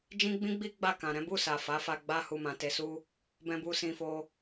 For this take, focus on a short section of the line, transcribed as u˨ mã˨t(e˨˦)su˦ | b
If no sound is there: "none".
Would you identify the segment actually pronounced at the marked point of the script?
e˧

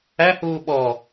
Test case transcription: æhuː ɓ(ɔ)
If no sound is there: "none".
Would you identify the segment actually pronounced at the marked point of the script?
ɔ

